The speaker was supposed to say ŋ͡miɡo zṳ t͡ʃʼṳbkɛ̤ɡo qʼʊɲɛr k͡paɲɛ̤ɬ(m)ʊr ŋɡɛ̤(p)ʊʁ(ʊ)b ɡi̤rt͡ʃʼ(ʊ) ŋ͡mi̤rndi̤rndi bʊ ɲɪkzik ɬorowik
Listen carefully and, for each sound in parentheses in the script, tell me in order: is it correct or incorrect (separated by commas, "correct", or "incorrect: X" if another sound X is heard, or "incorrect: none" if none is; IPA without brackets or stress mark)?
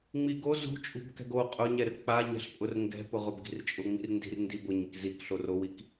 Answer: incorrect: pʼ, correct, correct, correct